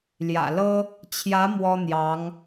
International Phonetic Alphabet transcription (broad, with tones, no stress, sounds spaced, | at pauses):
l j ä̰˨˩ l ɤ˥ | t͡ɕʰ j ä˧˥ m w ɔ˥ n̪ j ɑ˧˥ ŋ